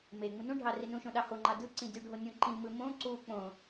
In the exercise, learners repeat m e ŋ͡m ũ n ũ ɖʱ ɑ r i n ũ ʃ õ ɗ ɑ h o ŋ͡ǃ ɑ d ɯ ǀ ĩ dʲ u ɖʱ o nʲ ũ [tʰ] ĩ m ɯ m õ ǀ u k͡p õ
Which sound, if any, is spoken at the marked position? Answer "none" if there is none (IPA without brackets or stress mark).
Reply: ǃ